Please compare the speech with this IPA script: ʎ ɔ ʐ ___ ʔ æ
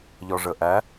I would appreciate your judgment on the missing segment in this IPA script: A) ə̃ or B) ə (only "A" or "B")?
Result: B